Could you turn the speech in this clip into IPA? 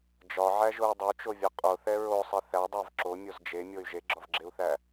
d͡ʒ ɒ ʕ æ ʒ o y̯ dˤ o t͡ʃ o vʲ ɒ qʼ o θ ɛ ɹ o sˤ e θ æ dˤ æ v ǁ o mʲ o z d͡ʒ e mʲ o y̯ ʒ e ɡ͡ǁ ɒ v ɡ͡ǁ e u̯ θ æ

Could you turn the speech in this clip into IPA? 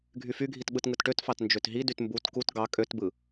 ɡʱ y f y ɡʱ i t ɓ ɯ t ŋ ɯ t ʈ ø t f ɑ t n d͡ʒ ø t ɦ i d y t m b u t k u t ɡ ɑ kʼ ø t b ɯ

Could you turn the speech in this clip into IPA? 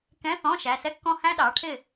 k ɛ̃˧˥˧ θ ɔ̃˧˥˧ ʃ æ˩˧˩ s ɛ˥ kː ɔ̃˥˨ h æ̃˥ ɗ ɑ˩˥ ʈʰ ɪ˥˨

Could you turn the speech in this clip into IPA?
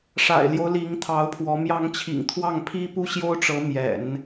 ʂ a̰˨˩ ɪ̯ l j o˦ ʊ̯ l i˧˥ ŋ t̪ʰ ɑ˧˥ ʊ̯ pʰ w ɔ˧˥ m j ɑ˧˥ ŋ t͡ɕʰ ḭ˨˩ ŋ t̪ʰ w ɑ˥˩ ŋ pʰ i˥ p u˥ ɕ j o˥ ʊ̯ ʈ͡ʂ ɤ˧˥ m j ɛ̰˨˩˦ n

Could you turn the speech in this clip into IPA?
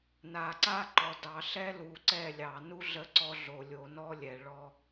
n a˨ ǀ a˦ ǃ ɔ˨ d ɑ˨ ɬ ɛ˦ l u˨ ǀ ɛ˦˨ lʲ ɑ˨ n u˦ ɮ ə˦ ǀ ɔ˦ ɮ o˨ lʲ o˨ n ɔ˦ lʲ ɛ˨ ɭ ɔ˦

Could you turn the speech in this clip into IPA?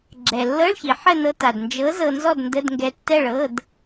ɡ͡ǁ ɛ˩ lː ɤ˧˥˧ ɭ ç i˩ ħ ə˥˨ n ɤ˧ t a˩ d n d͡ʒ ɤ˨˥ z ɤ˧ n z ɔ˥˨ d n d ə˧˥˧ d ŋ ɡ ɛ˧ tː ɛ˥˨ ɭ ɤ˧˥˧ d

